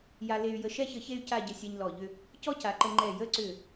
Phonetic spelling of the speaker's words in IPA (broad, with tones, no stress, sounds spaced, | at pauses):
j a˧ l e˧ y̯ j ə˧ ʃ ɛ˥ ç ə˧ ç e˥ y̯ c a˥˧ ɟ ə˧ sʲ ɛ˧ ɲ l ɔ˧˩ ʎ ʏ˥˧ | c ɔ˥ c a˩˧ ǃ ə˧ ŋ͡ǃ ɛ˧˩ j ə˥˧ ǀ ʏ˧˩